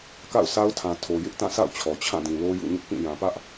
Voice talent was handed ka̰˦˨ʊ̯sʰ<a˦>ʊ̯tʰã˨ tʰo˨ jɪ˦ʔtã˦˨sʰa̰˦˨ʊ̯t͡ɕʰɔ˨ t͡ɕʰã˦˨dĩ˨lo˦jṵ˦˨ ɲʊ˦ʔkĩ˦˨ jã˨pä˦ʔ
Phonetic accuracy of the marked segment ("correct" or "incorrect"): correct